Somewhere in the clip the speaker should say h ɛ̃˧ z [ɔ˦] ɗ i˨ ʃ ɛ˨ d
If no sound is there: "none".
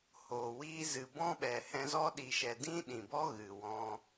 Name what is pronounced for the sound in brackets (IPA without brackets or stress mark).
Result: ɔ˦